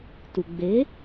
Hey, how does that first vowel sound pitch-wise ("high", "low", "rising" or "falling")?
low